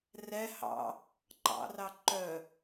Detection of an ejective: absent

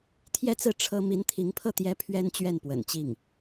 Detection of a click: absent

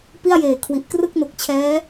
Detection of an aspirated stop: present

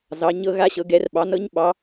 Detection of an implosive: present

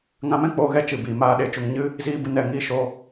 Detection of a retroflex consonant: absent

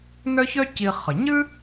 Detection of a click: absent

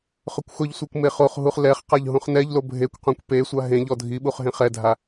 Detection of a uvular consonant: present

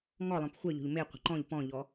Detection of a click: present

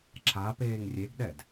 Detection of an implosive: present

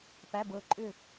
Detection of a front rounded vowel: present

